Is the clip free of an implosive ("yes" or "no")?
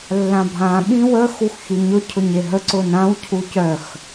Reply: no